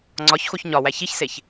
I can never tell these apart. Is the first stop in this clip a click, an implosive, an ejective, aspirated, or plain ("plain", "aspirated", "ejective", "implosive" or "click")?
click